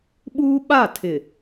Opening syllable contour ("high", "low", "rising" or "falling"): high